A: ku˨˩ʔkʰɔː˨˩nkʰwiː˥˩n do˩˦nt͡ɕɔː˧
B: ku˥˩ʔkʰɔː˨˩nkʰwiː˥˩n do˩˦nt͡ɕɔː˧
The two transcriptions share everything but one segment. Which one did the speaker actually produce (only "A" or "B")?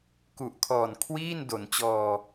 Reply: A